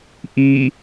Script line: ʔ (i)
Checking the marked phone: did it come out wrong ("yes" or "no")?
no